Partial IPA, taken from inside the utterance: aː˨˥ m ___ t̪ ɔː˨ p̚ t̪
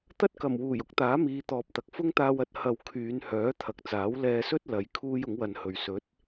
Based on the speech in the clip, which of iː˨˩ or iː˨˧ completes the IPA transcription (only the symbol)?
iː˨˧